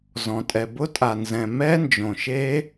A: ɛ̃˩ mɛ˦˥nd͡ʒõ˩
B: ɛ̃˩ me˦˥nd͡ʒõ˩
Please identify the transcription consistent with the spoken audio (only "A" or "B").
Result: A